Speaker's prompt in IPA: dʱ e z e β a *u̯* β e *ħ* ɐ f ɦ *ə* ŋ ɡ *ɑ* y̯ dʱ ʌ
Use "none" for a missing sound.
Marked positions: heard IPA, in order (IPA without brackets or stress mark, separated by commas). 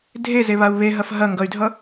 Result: u̯, ɦ, ɐ, ʌ